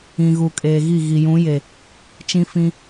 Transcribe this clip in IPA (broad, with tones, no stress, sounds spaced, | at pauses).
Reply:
ĩ˨ ɣ u˨ kʼ eː˨ ɣ i˦˨ ɣ i˨ j ũ˨˦ j e˨ | t͡ʃ ĩ˦ f ĩ˦